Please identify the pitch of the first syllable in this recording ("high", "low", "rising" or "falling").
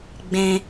low